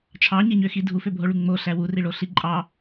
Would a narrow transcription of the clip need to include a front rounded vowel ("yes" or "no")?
yes